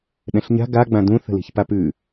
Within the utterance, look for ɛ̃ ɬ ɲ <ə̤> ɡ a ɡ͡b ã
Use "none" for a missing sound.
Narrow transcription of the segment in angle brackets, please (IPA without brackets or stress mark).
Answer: a̤